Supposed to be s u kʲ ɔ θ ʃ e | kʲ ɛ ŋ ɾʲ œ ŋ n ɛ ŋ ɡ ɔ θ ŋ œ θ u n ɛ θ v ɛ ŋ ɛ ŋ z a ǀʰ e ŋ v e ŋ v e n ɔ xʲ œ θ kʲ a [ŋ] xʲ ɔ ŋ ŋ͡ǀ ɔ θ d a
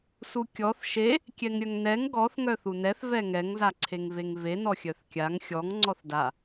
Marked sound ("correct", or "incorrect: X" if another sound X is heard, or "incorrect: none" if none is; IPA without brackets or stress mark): correct